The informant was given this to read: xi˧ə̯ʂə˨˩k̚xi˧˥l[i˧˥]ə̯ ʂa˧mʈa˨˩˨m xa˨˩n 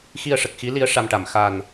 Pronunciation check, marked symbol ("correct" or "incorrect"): correct